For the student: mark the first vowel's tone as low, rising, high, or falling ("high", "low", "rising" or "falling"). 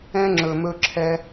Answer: high